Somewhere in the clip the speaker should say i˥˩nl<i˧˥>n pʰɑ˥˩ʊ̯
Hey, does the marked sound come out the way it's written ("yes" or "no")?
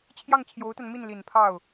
no